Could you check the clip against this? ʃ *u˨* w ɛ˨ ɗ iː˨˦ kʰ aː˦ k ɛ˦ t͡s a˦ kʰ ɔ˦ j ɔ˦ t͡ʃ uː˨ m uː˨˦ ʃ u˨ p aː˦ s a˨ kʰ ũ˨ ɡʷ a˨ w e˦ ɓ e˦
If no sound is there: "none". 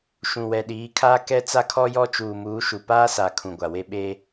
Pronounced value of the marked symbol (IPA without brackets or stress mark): ũ˨